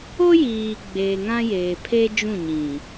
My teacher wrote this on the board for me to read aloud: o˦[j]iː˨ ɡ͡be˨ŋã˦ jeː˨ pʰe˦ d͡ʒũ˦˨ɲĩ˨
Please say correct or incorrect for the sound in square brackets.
correct